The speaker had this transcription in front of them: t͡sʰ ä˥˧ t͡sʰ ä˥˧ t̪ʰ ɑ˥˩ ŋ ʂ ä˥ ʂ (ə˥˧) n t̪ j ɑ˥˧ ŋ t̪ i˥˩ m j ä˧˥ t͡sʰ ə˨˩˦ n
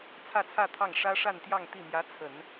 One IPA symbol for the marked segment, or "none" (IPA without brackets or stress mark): a˥˧